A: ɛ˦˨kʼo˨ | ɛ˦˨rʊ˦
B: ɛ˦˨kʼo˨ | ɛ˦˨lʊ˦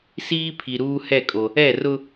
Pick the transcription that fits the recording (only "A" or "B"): A